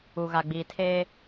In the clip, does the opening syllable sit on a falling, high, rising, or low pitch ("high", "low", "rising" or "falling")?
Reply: low